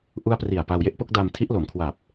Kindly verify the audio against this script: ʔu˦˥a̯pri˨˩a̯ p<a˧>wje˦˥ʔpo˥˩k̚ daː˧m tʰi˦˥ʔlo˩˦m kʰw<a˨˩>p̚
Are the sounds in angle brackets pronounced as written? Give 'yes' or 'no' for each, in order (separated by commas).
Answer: yes, yes